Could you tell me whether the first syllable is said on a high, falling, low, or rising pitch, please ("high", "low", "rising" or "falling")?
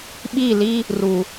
falling